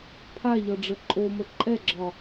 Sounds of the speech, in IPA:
pʰ a ʎ ɒ ɖ͡ʐ ə ǃʼ o m ə ǃʼ ɛ ɡ͡ǁ ɒ

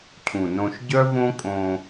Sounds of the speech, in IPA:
cʰ ũ˨ n õ˧ ʃ ɟ œ˦ v õ˦ kʼ õ˧

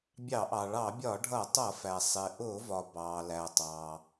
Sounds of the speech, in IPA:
bʲ ɑ˧˩˧ ʔ ɑ˩ ɭ ɑ˧˩˧ bʲ ɒ˧˩˧ ɖʱ ʌ˧˩˧ tˤ ʌ˧˩˧ f æ˩ sˤ ɪ˩ ʔ ʊː˧˩˧ v ɒ˩ b ɑː˩ l æ˩ tˤ ɑː˩

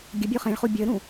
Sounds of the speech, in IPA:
ɡʲ ə bʲ u χ ẽ ɭ χ u bʲ ə ɾ ũ

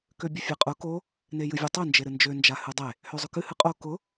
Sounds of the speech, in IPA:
k ø bʲ ʊ fʲ a qʼ ʊ k o | n e j ɨ vʲ e tˤ ø n d͡ʒ e ɾ ɨ n d͡ʒ ø n d͡ʒ a h ɨ dˤ e | h ø zˤ ʊ k ɨ h ɨ qʼ o k ʊ

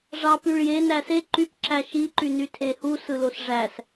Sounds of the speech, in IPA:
ʐ ɑ p y ɭ j e n æ s e ǃ y p ǁ æ ʃ i ǃ y n y tʰ e h u s ɯ l o s ʐ æ s

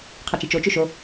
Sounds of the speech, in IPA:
qʰ ɑ t͡ʃ i t͡ʃ o t͡ʃ ø ʃ o

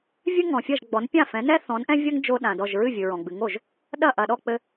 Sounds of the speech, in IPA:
vʲ ɨ˥ ŋ ɔ̃˩ fʲ ɐ˥˩ ʒ ɡ͡b ɔ˩˥ n pʲ ã˥˩ f ɛ̃˩˥ n ɛ˥ θ ɔ̃˩˥ n ʔ ɛ̃˥ vʲ ɐ˥ ŋ d͡ʒ o˥ ɗ ã˩ d ɔ˥˩ ʒ ɹ ɨ˥˩ vʲ ɨ˩ ɹ ɔ̃˩ ɡ͡b ɨ˩˥ ŋ o˩ ʒ | ɗ ɐ˥˩ ʔ ɐ˩ ɗ ɔ˥˩ k͡p ɘ˧

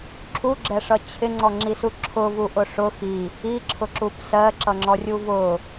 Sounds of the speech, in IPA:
ǁʰ u ɡ͡ǁ ɛ ʂ ʌ t͡ɕʰ ɪ ŋ͡ǀ ɔ ŋ͡ǁ i s u ǁʰ ʊ v u ʔ ʊ ʂ ʊ x i | i ǁʰ ʊ ǁ u p s ɜ ǁ ʌ ŋ͡ǁ ɔ rʲ u v ʊ

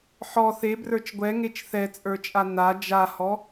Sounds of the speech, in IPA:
ħ ɔ θ e b r ə˞ t͡ʃ ɡʷ ɛ ŋ e t͡ʃ θ ɛ t͡sʼ ə˞ t͡ʃʼ a n a d͡ʒ a h ɔ

